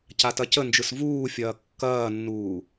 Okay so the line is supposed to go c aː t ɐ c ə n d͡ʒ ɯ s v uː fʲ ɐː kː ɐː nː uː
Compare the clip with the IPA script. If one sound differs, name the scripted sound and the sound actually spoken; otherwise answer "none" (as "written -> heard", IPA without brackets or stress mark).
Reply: aː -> a